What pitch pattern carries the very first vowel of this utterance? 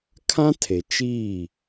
high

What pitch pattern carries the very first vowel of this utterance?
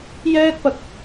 high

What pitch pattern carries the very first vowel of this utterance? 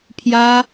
high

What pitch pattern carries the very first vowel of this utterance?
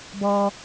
high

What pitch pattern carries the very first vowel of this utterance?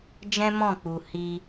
high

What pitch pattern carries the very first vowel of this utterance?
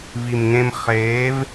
low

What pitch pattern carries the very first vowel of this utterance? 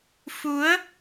rising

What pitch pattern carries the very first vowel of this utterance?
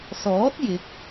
rising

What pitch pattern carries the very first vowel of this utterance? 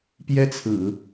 high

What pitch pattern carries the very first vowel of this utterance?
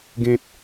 low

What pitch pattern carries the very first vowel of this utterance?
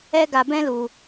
high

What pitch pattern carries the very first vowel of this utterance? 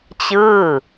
falling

